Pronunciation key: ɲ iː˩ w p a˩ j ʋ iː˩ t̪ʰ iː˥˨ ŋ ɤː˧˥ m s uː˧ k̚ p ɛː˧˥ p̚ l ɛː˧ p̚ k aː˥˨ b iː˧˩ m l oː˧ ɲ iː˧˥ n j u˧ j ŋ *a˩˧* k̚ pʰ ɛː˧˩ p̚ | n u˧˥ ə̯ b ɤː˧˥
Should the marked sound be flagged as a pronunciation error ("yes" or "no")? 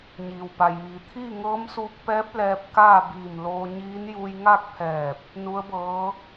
yes